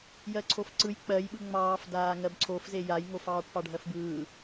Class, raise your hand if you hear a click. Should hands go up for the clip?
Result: yes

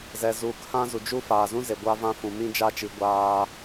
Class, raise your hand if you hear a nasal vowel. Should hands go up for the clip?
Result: yes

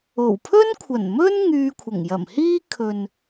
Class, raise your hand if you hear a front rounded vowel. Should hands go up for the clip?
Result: yes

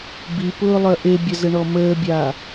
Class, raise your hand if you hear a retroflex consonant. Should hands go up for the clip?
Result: yes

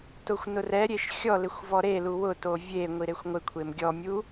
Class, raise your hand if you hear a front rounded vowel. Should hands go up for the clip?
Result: no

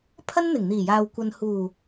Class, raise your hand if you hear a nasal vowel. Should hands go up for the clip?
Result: no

